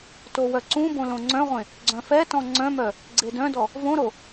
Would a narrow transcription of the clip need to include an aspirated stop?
no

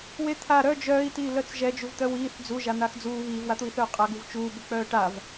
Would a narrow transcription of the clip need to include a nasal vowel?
no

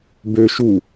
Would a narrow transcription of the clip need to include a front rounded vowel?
yes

